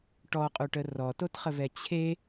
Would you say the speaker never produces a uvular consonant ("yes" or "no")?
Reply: no